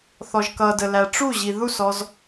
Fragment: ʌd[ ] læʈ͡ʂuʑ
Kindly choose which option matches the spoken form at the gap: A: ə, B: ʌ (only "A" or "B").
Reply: A